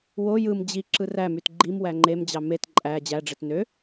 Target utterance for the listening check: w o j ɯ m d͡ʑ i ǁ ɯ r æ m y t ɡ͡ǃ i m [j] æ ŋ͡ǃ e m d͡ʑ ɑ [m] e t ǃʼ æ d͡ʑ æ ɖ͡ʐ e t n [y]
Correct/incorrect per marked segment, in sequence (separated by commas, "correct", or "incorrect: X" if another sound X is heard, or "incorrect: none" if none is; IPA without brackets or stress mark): incorrect: w, correct, incorrect: ø